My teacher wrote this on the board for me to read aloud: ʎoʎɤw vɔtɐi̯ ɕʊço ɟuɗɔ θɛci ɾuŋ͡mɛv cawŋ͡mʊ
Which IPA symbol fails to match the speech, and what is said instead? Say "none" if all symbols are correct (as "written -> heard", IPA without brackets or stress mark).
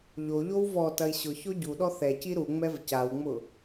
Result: ɤ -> o